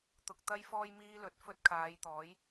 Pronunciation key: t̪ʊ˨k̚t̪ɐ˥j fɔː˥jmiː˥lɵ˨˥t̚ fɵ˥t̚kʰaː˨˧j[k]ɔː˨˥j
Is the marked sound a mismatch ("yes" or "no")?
yes